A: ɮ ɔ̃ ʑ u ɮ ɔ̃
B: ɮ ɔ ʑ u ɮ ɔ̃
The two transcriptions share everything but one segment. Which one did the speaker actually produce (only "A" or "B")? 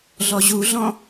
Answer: B